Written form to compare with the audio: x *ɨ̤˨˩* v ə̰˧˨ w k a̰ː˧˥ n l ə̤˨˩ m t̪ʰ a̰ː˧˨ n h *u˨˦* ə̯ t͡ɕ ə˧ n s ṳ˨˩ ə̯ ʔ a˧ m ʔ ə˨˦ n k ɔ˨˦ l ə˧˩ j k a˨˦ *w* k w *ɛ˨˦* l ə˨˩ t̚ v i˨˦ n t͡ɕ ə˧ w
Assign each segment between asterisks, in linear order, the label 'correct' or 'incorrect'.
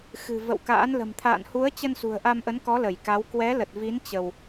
correct, correct, correct, correct

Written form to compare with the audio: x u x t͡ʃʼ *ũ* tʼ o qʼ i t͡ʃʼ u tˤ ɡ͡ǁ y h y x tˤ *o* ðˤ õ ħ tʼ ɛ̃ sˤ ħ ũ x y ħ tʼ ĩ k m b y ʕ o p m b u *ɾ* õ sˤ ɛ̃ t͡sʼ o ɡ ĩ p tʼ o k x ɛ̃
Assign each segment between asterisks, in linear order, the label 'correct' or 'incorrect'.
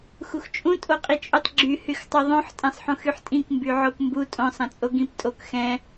correct, incorrect, incorrect

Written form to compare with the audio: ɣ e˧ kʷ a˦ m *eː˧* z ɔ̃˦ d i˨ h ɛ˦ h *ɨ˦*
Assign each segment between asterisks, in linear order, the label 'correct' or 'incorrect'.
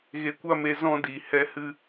incorrect, correct

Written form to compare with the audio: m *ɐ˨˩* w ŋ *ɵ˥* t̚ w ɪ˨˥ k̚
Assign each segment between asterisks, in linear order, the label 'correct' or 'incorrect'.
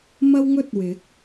incorrect, correct

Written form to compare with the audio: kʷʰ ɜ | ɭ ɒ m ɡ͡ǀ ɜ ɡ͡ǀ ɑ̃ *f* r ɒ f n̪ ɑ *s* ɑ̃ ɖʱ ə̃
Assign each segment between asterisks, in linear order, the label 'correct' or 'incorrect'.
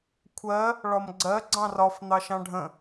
incorrect, incorrect

